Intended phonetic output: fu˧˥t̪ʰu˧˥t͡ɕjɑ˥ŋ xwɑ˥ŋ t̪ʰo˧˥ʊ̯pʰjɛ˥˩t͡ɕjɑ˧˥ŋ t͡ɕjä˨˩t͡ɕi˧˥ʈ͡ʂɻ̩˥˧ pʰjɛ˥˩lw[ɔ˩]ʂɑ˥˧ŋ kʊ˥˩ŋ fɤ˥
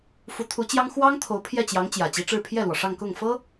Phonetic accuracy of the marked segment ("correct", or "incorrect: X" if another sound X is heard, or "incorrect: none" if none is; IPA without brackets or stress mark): correct